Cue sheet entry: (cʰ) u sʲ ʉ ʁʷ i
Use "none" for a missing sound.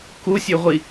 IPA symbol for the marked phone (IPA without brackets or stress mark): k